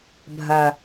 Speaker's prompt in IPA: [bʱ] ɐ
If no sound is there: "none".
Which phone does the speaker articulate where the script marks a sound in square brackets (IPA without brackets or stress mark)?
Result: bʱ